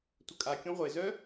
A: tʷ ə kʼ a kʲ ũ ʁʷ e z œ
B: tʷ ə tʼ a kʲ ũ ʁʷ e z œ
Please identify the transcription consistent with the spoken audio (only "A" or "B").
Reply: A